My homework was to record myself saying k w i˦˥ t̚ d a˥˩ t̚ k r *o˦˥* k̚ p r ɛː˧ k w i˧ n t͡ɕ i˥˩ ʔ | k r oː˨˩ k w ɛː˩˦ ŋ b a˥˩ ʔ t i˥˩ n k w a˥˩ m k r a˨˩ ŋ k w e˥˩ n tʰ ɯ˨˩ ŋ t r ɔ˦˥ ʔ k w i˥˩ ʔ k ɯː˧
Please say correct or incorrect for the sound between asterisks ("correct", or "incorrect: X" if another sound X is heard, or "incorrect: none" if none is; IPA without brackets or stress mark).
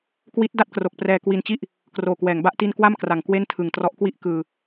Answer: incorrect: o˨˩